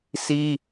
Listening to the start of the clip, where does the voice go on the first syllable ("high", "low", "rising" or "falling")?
high